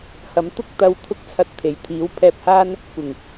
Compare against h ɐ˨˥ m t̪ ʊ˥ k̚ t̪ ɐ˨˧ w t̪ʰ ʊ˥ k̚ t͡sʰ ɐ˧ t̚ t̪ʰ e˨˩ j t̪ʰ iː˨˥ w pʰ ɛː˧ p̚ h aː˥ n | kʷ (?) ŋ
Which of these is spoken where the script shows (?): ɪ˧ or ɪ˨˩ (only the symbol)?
ɪ˨˩